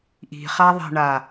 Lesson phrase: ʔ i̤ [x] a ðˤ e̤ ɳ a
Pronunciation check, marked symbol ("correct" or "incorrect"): incorrect